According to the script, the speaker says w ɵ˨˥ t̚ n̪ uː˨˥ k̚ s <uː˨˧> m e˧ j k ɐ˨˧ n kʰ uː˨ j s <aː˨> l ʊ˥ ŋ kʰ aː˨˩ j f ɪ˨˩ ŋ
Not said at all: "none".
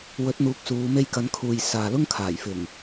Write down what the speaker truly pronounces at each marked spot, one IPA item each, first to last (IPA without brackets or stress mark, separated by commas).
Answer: uː˨˧, aː˨